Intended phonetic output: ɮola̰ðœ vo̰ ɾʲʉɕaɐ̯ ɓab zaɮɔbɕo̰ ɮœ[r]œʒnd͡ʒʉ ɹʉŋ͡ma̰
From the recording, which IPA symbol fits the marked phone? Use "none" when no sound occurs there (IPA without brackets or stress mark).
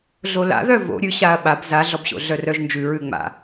r